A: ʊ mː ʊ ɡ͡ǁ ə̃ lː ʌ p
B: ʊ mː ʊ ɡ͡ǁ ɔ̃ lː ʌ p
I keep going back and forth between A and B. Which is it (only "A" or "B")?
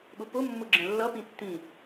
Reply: A